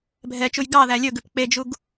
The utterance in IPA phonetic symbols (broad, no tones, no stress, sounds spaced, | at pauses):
bʱ ɛ t͡ʃ u j ɡ ɑ ð æ lʲ ɵ ɡ ʉ p k͡p e d͡ʒ u ɡ